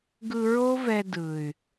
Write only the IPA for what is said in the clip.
ɡɯ˧ɹo˦vɛ˧ dɯ˨y̯

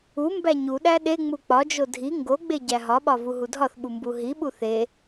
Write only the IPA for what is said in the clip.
u mbæɲuɗæ ɗeŋ͡mu k͡pɒd͡ʒo dʱi ŋɡoɡ͡be ɟæɦɒɓɒ vuɦudʱɒθɓu mbuɦiɓu θe

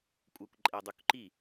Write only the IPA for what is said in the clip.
kʷʼɛkʷǃʼɛdˤukǃi

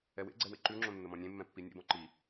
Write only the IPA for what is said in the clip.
ɛwḛɡ͡ǀɛ wḛǃʉŋ͡ǁõ nːəmɔ̃nʲẽmːɛ̃ pːinʲḛbɔ̃ ǃi

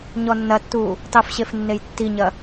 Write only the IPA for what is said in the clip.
ɲɔnːɐtːuː | tˤɨfɕef nːejtːiɲɐ

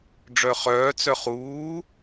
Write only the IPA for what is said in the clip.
ɖ͡ʐœχœː t͡sœχuː

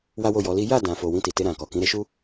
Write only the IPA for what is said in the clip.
wa˦wo˦˨jɔ˨˦li˦ ja˦˨ dã˨fo˨ wĩ˧ti˨te˧ɾã˨ kɔ˨kĩ˨˦ɾe˧ʃu˦

